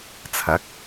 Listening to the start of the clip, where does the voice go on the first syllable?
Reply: rising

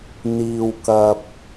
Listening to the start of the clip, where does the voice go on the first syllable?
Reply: low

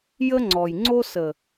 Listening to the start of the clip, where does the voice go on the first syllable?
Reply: high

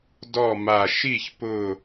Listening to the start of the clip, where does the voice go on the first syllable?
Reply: falling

